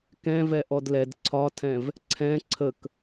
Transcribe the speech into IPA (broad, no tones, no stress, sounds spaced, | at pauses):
k ɛ̃ v ɛ ʔ ɔ d l ɛ d ǀʰ ɒ tʰ ɛ̃ v | ǀʰ ɛ̃ ǀʰ ə k